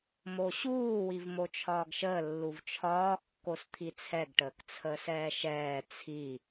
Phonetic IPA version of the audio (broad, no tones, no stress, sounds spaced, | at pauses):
m o ɕ uː w i v m o t͡ʃʰ ɒː ɡ ʃ əː lː u v t͡ʃʰ ɒː kː o s t̪ʰ i t͡sʰ ɛ ɡ ʈ əː k t͡sʰ əː s ɛː ʃ ɛː t͡sʰ i